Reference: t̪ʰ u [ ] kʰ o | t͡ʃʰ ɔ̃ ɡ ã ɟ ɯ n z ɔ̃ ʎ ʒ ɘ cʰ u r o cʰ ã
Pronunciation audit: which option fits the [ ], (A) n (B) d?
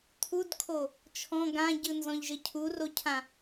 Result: B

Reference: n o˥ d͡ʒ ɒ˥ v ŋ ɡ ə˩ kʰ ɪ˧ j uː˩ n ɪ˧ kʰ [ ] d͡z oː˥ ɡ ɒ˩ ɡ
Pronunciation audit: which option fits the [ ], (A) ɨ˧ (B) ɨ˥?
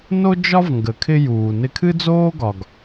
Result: B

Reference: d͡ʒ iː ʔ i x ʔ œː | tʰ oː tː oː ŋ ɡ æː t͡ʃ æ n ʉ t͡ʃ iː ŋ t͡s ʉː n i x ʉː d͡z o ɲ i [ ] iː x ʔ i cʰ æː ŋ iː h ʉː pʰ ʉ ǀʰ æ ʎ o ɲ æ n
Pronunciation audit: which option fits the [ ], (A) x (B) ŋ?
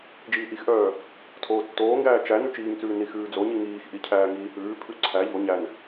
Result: B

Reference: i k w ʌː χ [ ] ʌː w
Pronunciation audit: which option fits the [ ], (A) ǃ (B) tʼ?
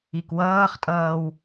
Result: B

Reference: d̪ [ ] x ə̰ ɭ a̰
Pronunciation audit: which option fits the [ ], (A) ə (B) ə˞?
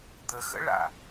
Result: A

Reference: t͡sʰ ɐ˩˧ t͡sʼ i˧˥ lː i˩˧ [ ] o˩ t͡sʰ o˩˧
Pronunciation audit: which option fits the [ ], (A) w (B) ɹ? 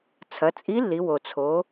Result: A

